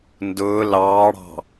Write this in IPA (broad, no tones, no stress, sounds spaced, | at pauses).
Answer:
n d ʊː l ɑː ɽ ɑ̤